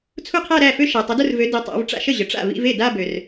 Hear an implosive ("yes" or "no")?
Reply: no